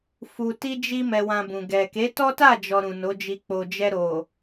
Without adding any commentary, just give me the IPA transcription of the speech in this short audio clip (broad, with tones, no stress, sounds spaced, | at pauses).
f u˧ t i˦ d͡ʒ i˦ m ɛ˧ w ã˧ b ũ˨ ɡ ɛ˨ k e˨˦ t ɔ˦ t a˦˨ d͡ʒ ɔ˨ ɾ ũ˨ n o˨˦ d͡ʒ i˧ k͡p o˨ d͡ʒ ɛ˧ ɾ o˨